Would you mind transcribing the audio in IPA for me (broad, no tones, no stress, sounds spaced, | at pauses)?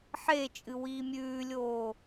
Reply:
ħ e t͡ʃʼ ɨ w iː mʲ ʉː lʲ oː